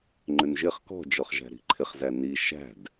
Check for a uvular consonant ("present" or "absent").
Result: present